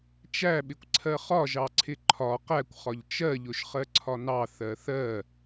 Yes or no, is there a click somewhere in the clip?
yes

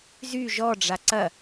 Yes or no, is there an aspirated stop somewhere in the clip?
no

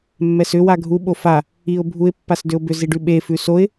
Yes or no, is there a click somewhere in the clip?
no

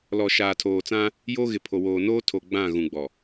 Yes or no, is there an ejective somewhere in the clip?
no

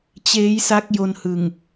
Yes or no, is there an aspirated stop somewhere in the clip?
no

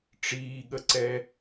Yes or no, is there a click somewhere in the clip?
yes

